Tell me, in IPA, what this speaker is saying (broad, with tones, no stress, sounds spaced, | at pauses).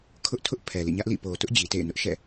kʰ ʊ˦ ʔ tʰ ʊ˦ ʔ pʰ ɛ˨ l ḭ˦˨ ɲ ä˦ ʔ l ḭ˦˨ p o˨ t ʊ˦ ʔ d͡ʑ i˨ t ḛ˦˨ ɪ̯ n ʊ˦ ʔ ʃ ɛ̰˦˨